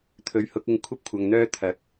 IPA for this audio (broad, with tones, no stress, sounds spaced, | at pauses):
t̪ʰ ɵ˨˥ ɥ h ʊ˨˥ k̚ ɪ˧ ŋ kʷʰ ɐ˥ p̚ kʷʰ ɐ˨ ŋ n̪ œː˥ t̪ʰ ɐ˨˥ k̚